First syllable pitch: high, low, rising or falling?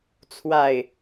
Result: low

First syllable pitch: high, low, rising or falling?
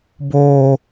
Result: low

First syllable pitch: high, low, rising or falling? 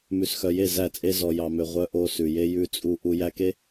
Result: low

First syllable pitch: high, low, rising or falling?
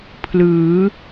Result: rising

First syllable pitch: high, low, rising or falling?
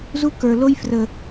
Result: high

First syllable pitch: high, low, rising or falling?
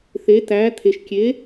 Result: rising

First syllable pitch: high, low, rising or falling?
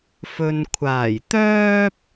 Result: low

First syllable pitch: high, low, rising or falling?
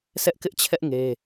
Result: high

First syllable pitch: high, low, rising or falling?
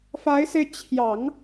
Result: rising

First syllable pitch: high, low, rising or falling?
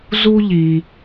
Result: high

